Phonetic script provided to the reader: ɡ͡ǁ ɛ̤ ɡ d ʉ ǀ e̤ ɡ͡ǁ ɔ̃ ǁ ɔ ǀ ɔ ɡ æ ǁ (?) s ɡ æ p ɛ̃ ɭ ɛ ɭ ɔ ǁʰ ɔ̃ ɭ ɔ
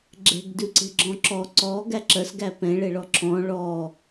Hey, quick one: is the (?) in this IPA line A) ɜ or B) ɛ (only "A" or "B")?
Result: A